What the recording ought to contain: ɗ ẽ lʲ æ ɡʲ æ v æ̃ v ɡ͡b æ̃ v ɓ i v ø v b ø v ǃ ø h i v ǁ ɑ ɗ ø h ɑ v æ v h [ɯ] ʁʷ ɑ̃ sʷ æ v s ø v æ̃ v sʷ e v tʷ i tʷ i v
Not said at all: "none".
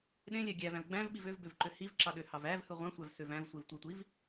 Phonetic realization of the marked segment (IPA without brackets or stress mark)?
ɯ